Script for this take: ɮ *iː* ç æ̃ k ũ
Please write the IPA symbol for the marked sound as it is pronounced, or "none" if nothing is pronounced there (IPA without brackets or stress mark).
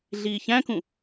iː